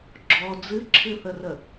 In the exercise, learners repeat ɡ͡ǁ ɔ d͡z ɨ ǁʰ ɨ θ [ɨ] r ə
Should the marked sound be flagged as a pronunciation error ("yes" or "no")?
yes